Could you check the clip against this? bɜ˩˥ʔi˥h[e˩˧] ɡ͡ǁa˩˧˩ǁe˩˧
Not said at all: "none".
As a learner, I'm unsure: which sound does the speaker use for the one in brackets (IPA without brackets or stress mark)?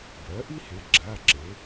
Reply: e˩˥